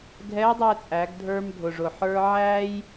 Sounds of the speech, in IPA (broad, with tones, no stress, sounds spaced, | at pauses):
ɡʱ ɛ˧˥ dˤ ɛ˧ t͡sʼ æ˩˧ ɡ dʱ ə˞˧ m dʱ ʊ˩ ʐ ʊ˩ ħ ə˞˧ ʕ æː˥ j